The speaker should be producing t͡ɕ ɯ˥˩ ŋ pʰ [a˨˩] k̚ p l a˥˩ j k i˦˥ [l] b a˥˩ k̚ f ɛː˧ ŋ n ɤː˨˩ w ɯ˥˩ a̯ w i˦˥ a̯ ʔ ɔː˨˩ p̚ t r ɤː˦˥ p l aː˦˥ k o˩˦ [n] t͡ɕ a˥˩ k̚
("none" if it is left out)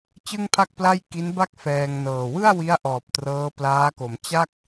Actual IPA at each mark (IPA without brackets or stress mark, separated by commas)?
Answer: a˥˩, n, m